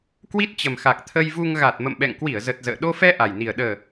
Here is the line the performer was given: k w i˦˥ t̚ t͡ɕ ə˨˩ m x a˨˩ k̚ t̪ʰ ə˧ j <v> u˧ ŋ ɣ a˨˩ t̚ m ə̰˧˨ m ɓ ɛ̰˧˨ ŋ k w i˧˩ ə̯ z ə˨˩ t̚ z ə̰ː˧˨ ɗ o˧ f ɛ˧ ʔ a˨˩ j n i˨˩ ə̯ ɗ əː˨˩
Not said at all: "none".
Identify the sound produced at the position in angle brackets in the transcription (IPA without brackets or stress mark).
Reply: v